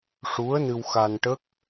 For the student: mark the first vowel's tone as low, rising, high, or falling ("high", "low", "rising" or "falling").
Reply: rising